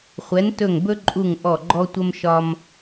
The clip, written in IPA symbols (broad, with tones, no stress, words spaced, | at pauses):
χʷɛ˧˥ntɵ˦˨ŋbɵ˥ǃʼu˦˨ŋ ʔɔ˦˨ɡ͡ǃɔ˥tʷə˥mʃɒ˥m